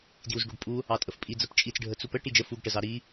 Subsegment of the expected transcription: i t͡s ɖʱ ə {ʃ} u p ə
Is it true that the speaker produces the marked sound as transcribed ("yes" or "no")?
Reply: no